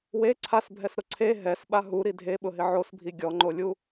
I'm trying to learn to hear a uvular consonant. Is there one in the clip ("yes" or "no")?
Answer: no